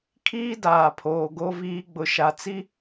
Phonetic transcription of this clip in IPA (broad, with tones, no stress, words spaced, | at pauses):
kʰiː˦daː˨pʰoː˨ ɡo˦viː˦ ɡ͡bʊ˨ʃa˨t͡si˦